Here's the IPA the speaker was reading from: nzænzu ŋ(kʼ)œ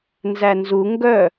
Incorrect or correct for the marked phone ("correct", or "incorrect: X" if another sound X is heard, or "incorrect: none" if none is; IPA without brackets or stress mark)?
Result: incorrect: ɡ